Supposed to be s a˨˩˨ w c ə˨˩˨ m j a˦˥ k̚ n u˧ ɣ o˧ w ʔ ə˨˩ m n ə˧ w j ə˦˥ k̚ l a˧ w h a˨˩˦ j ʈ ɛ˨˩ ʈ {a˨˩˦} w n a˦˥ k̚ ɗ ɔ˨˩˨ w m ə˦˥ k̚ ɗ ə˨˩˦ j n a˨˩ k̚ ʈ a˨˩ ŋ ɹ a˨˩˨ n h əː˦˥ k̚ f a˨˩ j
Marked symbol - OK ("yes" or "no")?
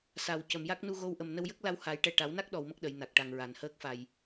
yes